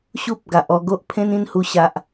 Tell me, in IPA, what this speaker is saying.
ɕ u˦ p̚ ɡ a˨ ʔ ɔ˥˧ ɡ o˦ ʔ pʰ ẽ˦ n ĩ˧ n h u˨˩ ɕ a˨ ʔ

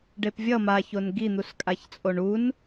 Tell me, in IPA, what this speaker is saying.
ɖ e p vʲ ʌ m a ç o n ɡ i n̪ u s kʼ a ç t͡sʼ o ɳ u n

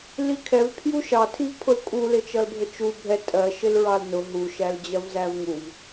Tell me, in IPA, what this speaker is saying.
l i kʰ ɛ v pʰ j u ʃ ɑ tʰ i v pʰ ʊ l kʼ u l ɪ t͡ʃ ʌ l bʱ ə t͡ʃ u bʱ ɛ tʼ ɜ ʃ ɪ l ɹ ɑ l n ʊ ɦ u ʃ æ l d͡ʑ ɜ v z æ v ŋ u v

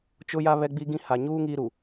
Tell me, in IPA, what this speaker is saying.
t͡ʃ ʊ˦ j a˦ β ɛ˦ ɡ͡b i˦ ɡ ĩ˦ h a˨ ɲ uː˦ ŋ iː˦ ɾ u˨

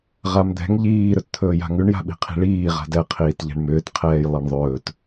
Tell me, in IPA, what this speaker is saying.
ʁ a m d̪ ɛ̤ ŋ ʎ iː ɾ ɵ t t̪ʰ ɵː j a̤ ŋ ʉ ɳ j a̤ ɓ i̤ qʰ i̤ ɭ iː ʁ a̤ d ɛ qʰ iː t ʎ ɛ̤ ɳ m ʏː t qʰ ɛː j lˠ ɛ ɳ ðˤ ɵː t

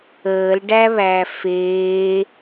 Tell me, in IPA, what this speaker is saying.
əː l ɖ æ β æ f eː

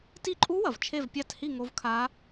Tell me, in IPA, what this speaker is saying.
t i˦˨ ǃʼ u˦˥ w ɐ˩ v t͡ʃʰ e˦˨ v pʲ a˦˨ t h i˦˨ ŋ o˦˥ v kʰ a˦˥

